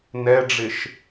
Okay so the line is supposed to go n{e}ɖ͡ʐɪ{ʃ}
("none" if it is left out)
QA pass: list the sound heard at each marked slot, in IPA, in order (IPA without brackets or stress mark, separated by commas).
ɛ, ʃ